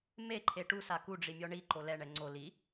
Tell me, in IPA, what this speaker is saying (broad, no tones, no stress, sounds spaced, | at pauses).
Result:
m e ǃʰ e ʈ u s a k u ɖ͡ʐ i mʲ ɔ ɳ i ǃ o l ɛ ɳ ɛ ŋ͡ǀ o l i